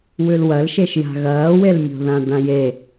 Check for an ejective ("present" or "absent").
absent